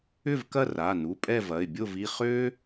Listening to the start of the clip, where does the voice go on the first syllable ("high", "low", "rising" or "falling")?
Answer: falling